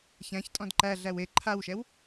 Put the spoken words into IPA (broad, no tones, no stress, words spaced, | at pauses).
çæ̃çtʼɔ̃d ǃæɮæw e ǃʰawʃɛw